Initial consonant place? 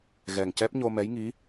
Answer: velar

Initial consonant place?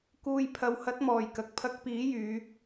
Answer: velar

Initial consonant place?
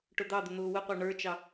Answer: retroflex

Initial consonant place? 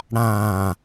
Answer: retroflex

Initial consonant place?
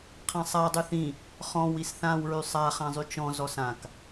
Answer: uvular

